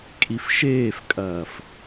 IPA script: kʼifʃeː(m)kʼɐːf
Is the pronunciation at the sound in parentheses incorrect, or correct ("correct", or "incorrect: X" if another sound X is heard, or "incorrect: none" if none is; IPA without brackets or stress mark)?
incorrect: f